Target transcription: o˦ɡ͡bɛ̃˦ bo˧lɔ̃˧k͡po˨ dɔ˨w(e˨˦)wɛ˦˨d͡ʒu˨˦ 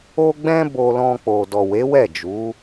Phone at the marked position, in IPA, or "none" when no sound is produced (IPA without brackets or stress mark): e˨˦